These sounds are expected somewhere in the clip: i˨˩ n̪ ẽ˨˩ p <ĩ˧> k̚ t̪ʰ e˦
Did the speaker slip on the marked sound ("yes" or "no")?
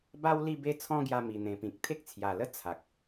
yes